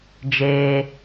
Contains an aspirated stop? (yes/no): no